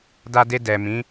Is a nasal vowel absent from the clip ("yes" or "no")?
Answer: no